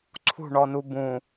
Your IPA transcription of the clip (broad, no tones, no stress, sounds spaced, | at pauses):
ǀʰ ṳ ɳ ɔ n u b ũ